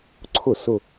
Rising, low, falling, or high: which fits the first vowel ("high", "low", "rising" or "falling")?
falling